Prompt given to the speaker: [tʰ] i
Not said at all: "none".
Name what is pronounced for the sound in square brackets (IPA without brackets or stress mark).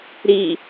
ɾ